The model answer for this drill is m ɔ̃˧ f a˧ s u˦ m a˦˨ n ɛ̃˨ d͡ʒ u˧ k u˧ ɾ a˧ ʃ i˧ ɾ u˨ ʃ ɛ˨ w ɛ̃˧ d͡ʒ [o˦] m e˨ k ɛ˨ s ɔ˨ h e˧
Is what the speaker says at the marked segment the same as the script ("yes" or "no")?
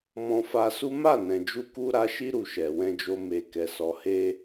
no